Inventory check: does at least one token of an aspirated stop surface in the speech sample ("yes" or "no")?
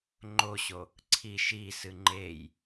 yes